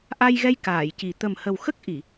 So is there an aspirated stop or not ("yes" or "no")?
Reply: no